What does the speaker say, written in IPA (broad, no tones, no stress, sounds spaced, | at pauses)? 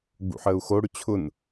ɡ͡b ṵ ħ əː u̯ x o ɽ ʏ t͡ɕʰ ʊ n